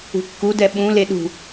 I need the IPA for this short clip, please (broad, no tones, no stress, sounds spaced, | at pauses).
ṳ kː u d ɛ ɓ ũ l e ɗ ṳ